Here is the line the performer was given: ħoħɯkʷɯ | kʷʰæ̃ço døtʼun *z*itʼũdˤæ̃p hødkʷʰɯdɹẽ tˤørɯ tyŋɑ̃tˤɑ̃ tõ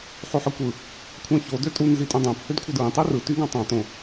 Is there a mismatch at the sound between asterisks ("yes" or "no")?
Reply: no